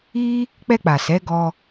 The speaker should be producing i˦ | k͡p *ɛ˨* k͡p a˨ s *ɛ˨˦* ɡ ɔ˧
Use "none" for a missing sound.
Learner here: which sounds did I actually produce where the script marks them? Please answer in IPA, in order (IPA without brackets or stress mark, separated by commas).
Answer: ɛ˧, ɛ˨˦